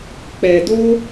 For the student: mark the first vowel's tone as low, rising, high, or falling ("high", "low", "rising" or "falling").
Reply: low